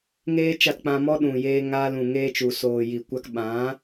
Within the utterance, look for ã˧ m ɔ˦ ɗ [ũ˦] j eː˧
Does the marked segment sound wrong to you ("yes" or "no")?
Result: yes